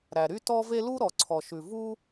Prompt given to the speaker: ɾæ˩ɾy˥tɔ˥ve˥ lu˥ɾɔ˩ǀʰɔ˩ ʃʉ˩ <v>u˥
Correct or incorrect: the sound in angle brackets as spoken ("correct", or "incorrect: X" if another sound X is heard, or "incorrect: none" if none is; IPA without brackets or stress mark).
correct